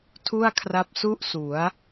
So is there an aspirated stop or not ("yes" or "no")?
yes